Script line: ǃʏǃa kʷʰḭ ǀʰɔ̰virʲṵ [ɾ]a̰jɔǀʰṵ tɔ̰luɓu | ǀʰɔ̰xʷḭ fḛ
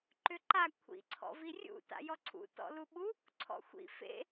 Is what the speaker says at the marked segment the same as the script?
no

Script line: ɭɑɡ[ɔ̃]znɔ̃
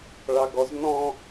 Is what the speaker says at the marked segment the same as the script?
no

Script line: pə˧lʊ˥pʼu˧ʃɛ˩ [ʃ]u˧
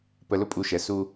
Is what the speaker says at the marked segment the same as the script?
no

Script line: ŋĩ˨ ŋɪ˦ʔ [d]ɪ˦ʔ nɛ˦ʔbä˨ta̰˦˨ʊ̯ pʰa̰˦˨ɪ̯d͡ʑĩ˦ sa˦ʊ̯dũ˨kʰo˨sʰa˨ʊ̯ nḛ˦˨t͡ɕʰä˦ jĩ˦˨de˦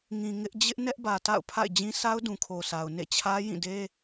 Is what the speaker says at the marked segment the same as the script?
no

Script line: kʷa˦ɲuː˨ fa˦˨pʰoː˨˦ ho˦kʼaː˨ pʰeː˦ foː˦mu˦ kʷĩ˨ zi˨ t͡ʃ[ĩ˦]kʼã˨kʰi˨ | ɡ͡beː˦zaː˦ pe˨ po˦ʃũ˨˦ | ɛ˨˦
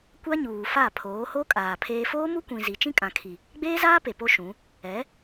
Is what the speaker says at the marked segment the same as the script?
yes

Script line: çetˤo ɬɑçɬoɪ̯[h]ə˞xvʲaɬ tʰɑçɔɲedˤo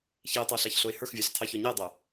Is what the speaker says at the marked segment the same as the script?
yes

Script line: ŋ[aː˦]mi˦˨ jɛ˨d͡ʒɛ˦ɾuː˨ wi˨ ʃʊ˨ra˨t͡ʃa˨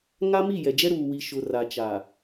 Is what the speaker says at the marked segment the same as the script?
no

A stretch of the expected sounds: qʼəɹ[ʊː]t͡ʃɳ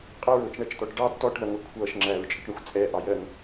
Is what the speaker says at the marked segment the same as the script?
yes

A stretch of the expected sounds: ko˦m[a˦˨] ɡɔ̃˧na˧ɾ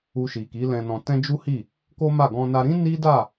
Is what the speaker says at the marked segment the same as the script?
yes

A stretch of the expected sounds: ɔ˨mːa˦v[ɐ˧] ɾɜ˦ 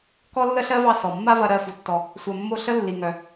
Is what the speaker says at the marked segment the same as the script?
yes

